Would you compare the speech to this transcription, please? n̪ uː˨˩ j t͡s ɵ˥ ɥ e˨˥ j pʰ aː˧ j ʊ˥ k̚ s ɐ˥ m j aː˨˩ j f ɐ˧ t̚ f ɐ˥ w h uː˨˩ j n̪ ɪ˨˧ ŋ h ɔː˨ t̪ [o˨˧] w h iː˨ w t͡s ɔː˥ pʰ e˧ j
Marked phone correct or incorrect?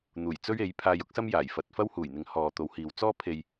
correct